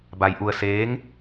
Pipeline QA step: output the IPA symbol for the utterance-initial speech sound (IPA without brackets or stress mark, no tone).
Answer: b